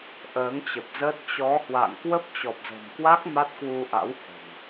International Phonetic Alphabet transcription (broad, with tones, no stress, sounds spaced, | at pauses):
ʔ əː˨˦ ŋ t͡ɕ ə˨˩ p̚ z əː˦˥ t̚ t͡ɕ ɔ˨˦ h w a̰˧˨ ŋ k w ə˦˥ p̚ t͡ɕ ɔ˨˩ p̚ z ə̤˨˩ m k w a˦˥ k̚ m a˦˥ t̚ k w u˧ ʔ a̰˧˥ w h ə̤˨˩ n